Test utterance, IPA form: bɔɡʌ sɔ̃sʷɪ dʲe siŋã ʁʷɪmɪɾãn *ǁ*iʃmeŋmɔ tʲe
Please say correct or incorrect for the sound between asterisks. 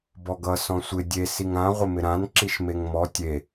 correct